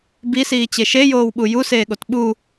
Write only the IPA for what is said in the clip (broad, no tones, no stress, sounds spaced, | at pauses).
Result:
b i s iː t͡ɕ e ʃ e j oː w ɓ u j u s eː ɠ o t ɓ u